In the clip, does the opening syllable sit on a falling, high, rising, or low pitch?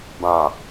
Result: low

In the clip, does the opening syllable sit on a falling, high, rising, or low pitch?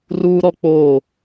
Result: high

